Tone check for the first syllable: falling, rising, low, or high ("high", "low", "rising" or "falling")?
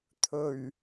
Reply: low